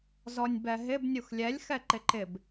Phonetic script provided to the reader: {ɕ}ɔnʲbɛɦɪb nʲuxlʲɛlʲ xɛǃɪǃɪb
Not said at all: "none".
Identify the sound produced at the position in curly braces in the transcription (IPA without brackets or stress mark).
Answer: z